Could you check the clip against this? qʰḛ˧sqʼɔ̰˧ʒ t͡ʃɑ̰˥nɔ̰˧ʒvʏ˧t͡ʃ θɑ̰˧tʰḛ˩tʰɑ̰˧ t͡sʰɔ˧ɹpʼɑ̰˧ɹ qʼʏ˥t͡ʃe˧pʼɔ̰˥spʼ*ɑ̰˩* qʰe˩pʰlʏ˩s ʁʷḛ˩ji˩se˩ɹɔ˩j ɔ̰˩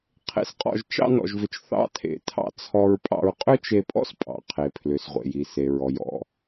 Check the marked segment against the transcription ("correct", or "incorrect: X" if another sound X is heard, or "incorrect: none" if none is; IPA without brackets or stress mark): correct